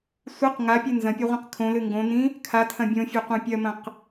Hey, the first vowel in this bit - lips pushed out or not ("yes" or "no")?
no